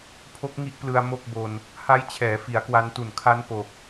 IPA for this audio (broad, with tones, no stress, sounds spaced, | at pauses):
pʰ o˦˥ k̚ ŋ i˦˥ ʔ p l ɯ˧ a̯ m o˥˩ k̚ b o˧ n | h a˦˥ j t͡ɕʰ ɛː˩˦ f i˩˦ a̯ k w a˧ n t u˨˩ n kʰ a˦˥ n p o˨˩ k̚